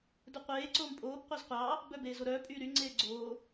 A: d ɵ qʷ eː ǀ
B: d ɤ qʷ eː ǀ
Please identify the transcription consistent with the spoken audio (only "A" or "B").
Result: A